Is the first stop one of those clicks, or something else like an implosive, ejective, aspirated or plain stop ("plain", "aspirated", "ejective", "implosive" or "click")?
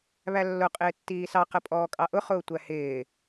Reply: ejective